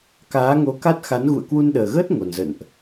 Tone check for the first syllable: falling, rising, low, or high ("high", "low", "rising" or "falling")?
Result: rising